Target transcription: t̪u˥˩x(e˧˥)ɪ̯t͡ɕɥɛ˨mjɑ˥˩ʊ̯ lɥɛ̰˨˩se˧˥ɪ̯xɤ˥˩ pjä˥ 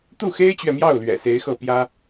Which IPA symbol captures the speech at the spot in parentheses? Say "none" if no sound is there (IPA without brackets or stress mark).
e˥